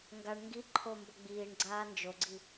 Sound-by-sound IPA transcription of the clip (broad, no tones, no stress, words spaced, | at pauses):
ŋɡaɳ ŋɡiǃʰo mbʌɡ͡biːɳɡ͡ǀaː nd͡ʒoɡ͡ǀi